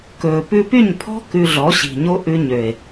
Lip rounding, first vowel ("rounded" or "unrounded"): rounded